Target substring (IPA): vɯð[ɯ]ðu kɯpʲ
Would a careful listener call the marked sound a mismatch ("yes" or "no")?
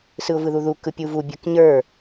yes